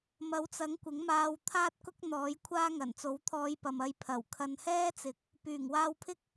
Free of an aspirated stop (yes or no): no